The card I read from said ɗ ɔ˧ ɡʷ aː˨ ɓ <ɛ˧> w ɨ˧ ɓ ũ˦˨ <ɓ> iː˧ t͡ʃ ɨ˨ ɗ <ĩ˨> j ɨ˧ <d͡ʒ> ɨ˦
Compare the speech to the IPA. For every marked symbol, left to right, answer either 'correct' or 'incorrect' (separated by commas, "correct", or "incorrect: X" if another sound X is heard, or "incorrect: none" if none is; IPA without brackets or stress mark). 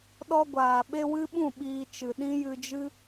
incorrect: e˧, correct, incorrect: ĩ˦, correct